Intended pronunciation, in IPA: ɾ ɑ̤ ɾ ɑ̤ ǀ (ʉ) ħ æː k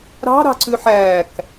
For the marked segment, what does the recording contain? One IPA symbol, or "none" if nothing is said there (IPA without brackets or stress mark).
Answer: ʉ